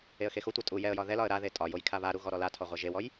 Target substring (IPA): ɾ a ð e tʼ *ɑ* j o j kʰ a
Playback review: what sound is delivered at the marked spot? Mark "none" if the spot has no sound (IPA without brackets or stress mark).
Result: ɒ